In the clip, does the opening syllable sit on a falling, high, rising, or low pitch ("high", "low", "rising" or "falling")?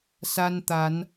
high